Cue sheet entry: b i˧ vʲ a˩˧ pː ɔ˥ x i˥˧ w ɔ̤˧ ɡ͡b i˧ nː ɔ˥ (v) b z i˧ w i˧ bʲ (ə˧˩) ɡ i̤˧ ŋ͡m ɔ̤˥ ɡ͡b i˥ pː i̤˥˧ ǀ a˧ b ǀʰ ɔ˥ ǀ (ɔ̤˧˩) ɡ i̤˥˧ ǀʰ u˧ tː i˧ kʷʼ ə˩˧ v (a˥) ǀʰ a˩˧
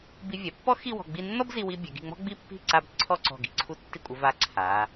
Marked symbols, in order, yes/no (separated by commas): no, no, yes, no